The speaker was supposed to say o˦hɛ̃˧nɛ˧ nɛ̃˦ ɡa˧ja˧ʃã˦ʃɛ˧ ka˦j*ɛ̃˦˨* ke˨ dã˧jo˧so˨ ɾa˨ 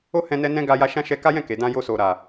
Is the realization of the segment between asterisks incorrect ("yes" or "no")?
no